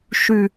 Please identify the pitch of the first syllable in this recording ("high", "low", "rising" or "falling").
falling